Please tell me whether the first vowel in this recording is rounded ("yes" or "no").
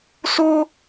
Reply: yes